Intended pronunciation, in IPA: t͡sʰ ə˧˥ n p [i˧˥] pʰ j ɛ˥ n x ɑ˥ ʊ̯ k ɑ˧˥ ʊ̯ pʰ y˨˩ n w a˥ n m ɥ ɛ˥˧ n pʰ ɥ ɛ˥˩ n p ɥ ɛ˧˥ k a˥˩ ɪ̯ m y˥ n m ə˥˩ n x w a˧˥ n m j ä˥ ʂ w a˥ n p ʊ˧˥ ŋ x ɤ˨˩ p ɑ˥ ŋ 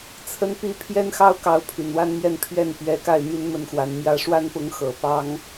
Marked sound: correct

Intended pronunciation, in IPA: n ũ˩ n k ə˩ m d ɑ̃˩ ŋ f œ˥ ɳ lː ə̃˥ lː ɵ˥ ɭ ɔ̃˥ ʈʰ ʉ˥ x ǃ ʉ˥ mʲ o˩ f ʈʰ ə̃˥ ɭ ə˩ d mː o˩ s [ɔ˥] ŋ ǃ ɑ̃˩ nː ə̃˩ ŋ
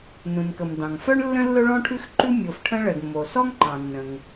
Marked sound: correct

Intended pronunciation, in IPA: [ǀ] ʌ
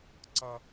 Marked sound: correct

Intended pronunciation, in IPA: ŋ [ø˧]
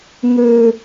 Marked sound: correct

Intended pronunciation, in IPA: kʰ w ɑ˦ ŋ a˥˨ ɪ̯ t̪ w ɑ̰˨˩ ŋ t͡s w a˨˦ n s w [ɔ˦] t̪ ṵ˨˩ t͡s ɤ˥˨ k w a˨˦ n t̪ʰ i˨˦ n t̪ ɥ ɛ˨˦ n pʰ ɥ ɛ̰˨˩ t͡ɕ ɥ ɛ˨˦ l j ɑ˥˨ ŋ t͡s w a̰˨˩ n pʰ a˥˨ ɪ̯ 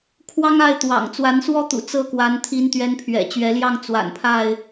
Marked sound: correct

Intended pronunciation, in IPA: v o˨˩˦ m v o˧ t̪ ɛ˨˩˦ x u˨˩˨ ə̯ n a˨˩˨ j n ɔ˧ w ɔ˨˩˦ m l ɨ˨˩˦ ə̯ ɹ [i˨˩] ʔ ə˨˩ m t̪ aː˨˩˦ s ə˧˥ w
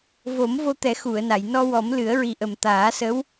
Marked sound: correct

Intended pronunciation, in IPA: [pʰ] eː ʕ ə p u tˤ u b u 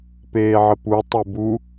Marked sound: incorrect: p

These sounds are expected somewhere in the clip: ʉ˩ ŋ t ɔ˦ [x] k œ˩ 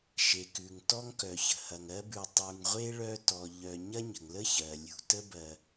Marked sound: incorrect: ŋ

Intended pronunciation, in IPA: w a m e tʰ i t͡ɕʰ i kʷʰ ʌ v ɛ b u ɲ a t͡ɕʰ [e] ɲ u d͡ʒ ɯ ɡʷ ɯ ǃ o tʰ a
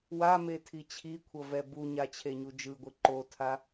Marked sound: correct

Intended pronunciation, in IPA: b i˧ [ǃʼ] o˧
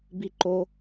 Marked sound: incorrect: ǃ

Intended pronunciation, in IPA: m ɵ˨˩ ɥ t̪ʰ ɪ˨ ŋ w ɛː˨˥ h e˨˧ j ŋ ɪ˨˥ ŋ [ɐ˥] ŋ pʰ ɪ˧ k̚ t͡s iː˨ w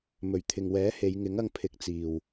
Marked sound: incorrect: ɐ˧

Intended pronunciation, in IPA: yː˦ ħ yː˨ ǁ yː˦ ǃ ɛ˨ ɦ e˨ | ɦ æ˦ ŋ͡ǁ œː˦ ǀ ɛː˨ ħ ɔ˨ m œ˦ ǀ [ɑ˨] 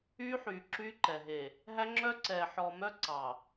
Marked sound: correct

